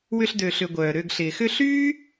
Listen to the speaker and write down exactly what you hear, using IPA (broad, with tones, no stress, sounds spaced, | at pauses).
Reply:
w ʏ˦ ɬ d ø˨ ɬ ʏ˨ ɡʷ œː˩ ɾ ø˨ ɡ ɬ ɪː˩ x ʏ˦ ɬ yː˥